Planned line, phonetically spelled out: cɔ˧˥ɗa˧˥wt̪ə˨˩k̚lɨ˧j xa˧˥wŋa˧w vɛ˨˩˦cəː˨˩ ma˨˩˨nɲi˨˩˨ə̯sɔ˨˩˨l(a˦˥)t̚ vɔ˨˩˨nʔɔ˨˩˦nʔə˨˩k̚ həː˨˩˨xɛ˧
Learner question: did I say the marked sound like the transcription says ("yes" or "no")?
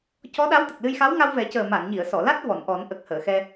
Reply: yes